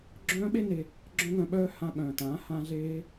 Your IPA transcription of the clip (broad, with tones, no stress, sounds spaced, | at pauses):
ɡ͡ǁ œ̃ː˦ ɓ e˦ n e˧ | ɡ͡ǁ œ̃˦ ŋ œ̃˧ ɓ œː˦ h ã˧ ɓ œ̃ː˨ t ãː˨˦ h ã˧ ɮ eː˧